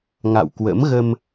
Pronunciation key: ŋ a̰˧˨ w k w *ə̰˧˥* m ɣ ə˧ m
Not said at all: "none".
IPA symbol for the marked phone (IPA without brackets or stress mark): ə̰˧˥